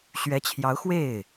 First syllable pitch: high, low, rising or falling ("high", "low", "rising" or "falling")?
rising